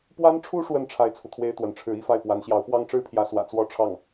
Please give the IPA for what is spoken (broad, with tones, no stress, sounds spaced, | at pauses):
p w a˥ n ʈ͡ʂʰ u˥ ʂ w ə˥˩ n ʈ͡ʂʰ a˥ ɪ̯ t͡sʰ u˨ t̪ʰ w e˥ ɪ̯ t̪ w ə˧˥ n ʈ͡ʂʰ ɻ̩˧˥ i˥ f a˥˩ ɪ̯ p w a˧˥ n ɕ j ɑ˧˥ ʊ̯ p w ɑ˥ ŋ ʈ͡ʂ ɻ̩˥ pʰ j ä˧˥ s w ä̰˨˩ t͡s w ɔ˥ ʈ͡ʂʰ ɑ˥˩ ŋ